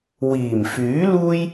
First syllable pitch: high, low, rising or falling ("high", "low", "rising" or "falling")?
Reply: low